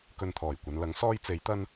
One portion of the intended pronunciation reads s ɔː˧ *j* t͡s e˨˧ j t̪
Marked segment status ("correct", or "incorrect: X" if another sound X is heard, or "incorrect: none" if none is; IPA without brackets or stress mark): correct